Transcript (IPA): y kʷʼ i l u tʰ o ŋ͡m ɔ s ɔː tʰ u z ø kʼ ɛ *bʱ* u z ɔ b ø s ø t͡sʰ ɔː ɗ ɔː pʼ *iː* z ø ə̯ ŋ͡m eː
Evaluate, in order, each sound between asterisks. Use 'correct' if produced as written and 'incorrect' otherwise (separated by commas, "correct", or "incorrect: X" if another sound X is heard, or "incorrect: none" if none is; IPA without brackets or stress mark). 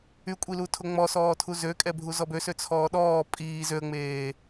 correct, correct